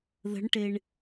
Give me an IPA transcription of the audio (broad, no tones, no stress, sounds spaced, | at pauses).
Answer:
ð ə̤ ɳ ʈ e ɳ